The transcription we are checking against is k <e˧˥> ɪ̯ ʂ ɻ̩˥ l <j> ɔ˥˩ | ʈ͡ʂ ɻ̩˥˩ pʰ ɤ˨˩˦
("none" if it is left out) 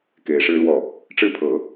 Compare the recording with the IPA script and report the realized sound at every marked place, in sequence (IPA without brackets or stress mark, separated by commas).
e˧˥, w